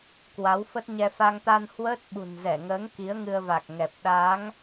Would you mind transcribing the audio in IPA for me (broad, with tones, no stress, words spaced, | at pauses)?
kwa˨˦wfə˦˥t̚ ɲɛ˧ fa˧ŋt̪a˧n hwəː˦˥t̚ɓṳ˨˩nzɛ˧˩ŋəː˨˦ŋ ki˨˦ə̯ŋɨ˧ə̯va˨˩k̚ŋɛ˨˩p̚ ɗa˨˦ŋ